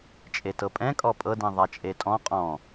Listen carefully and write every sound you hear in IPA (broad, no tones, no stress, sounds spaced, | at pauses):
t͡ʃʼ e t ɤ pʼ ɛ̃ kʼ ɔ pʼ ɤ d ĩ ðˤ a t͡ʃʼ e tʼ ɔ̃ qʼ ɔ̃